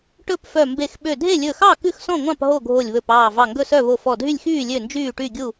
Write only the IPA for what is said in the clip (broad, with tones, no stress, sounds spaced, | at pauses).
ʈ ɵ˥˨ p f œ˧˩ m b e˧˩ x ɓ ø˧˩ dʱ e˥˨ lʲ ɵ˧˩ x ɑ˥˨ k ʉ˥˨ x s ɔ̃˥˨ ŋʷ ɑ̃˥˨ p ɦ o˥˨ ɡʱ o˧˩ lʲ β ɵ˧˩ p ɑː˧˩ v ɑ˧˩ ŋ ɡ ɵ˥˨ s œ˥˨ β o˧˩ f ɔ˧˩ dʱ y˥˨ lʲ x yː˥˨ lʲ ø˥˨ n d͡ʒ yː˥˨ ʈ y˥˨ ɡʲ u˥˨